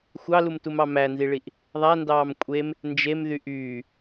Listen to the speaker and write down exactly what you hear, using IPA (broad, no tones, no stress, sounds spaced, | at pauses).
xʷ ɑ l u m t u m ɑ m æ n z i ɭ i ʔ | ðˤ æ n d ɑː m kʷʼ e m | n d͡ʒ e m ð y ʔ yː